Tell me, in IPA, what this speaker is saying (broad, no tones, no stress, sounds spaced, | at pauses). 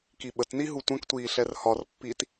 k i ɓ ə t n i ɦ u tʷ ə̃ k tʷ iː ɬ ɛ r h ɒ r pː i t